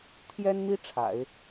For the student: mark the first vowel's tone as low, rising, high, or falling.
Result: high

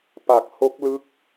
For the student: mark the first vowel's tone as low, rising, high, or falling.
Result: low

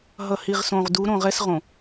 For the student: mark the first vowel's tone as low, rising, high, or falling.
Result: low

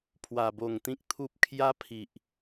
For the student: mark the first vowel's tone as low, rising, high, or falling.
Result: low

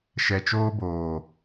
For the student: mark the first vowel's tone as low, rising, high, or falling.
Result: low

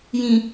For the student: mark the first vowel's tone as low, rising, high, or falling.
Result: low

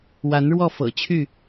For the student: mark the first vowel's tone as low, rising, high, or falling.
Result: rising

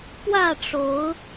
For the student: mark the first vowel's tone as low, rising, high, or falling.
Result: falling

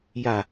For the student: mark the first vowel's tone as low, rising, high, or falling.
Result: low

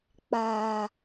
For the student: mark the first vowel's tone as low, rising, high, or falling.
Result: low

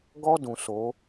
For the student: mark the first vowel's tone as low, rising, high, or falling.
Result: high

